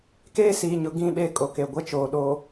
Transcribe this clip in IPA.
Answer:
k eː˦ s iː˨ ɲ ʊ˨ ɡ ĩ˦˨ ɓ e˦˨ kʼ o˨ k e˨ ɡʷ ɛ˦ t͡ʃ oː˨ ɗ o˨

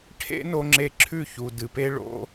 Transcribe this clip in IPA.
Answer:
ʈʰ ḛ˦ n o˧ ŋ͡ǁ e˧ ǁʰ ʉ˦˨ ç u˨ d ɨ˨ p e˦ ɭ o̰˦

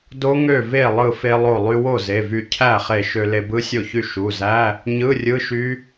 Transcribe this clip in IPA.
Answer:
d o˦˥ ŋ ø˥˩ v e˥˩ lˠ ɯ˧˩ f e˧ lˠ o˧˩ lˠ y˧ w o˥˩ z e˩˧˩ v y˧˩ cʰ æ˥˩ χ e˧˩ ʃ ø˧ l e˧ b ɯ˦˥ sʲ o˥˩ ç y˥˩ ʃ u˩˧˩ z æ˧˥˧ | ɲ ɯ˧˥˧ rʲ ɯ˧˥˧ ʃ y˦˥

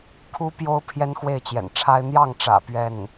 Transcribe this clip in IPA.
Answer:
kʰ u˥ p j o˥ ʊ̯ pʰ j ɛ˥ n x w e˥˩ ɪ̯ t͡ɕ j ɛ̰˨˩ n ʈ͡ʂʰ a˥ ɪ̯ n̪ j ɑ˥˩ ŋ ʈ͡ʂ ä̰˨˩ p ɥ ɛ˥˩ n

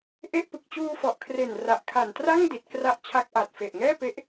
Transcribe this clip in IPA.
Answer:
ʔ e˥˩ ʔ p ɯ˨˩ k̚ t͡ɕ uː˧ f ɔ˨˩ ʔ kʰ r e˨˩ n r a˨˩ ʔ kʰ a˨˩ n t r a˥˩ ŋ d i˨˩ t̚ k r a˦˥ ʔ t͡ɕʰ a˦˥ k̚ ʔ a˨˩ t̚ f e˨˩ ʔ ŋ ɛː˥˩ p e˦˥ ʔ

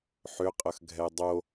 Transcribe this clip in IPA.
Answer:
ħ ʏ qʼ ə x ɡʱ ɛ dˤ o

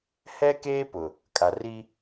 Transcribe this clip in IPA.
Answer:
h ɛ˦ k eː˦ p ʊ˨ | kʼ a˨ r i˦

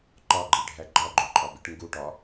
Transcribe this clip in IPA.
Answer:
ǃ ɒ ɡ͡ǃ i ɖʱ æ ɡ͡ǃ ɒ ɡ͡ǃ o ǃʼ ɒ b i ʈ ŋ ɡ u ʈ ɒ

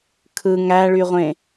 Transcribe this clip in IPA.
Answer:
kʰ ɯ ŋ æ ɭ y ʁʷ ẽ

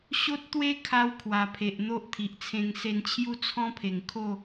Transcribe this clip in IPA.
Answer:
ɕ o˦ t̚ t̪ w e˦ kʰ a˧ w kʰ w a˨˩ pʰ e˨ ʔ n̪ o˦ ʔ t̪ʰ i˨ ʔ t͡sʰ ẽ˧ ŋ s e˧ n t͡ɕʰ j u˦ t͡sʰ ɔ̃˦ pʰ e˨˩ ŋ kʰ o˥˧

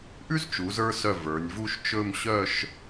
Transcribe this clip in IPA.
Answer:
ʔ ʉ˥ z t͡ʃ u˩˧ z ə˞˧ s œ˧˩ v ə˞˩˧ nʲ v u˥˧ ʃ t͡ʃ ɵ˥˧ m ɕ œ˥˧ ʃ

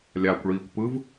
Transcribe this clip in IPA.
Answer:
lʲ aː kʷ ɭ iː kʷ p ɯ v

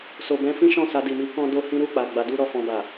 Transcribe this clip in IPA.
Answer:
s o˨ b ɛ̃˧ f ĩ˦ ʃ ɔ̃˦˨ s a˧ d i˨ m i˨˦ k ɔ̃˧ d o˧ h ĩ˦ ɾ u˦˨ k͡p a˨ ɡ͡b a˨˦ d u˦ ɾ ɔ˦˨ f ɔ̃˧ b a˨

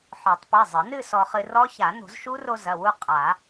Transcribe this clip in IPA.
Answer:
ħ ɔ˨˩˦ tˤ p e˩˧˩ zˤ ɘ˨˩˦ n ɨ˥˧ s ɔ˧ χ ɨ˧ r ɔ˦˥ ç a˨˩˦ n o̤˨˩˦ z ʃ u˦˥ r o˧ z ɐ˩˧˩ w u˥˧ qʼ a˨˩˦

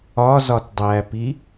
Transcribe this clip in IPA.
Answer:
ɒ z ɒ t dˤ æ p i

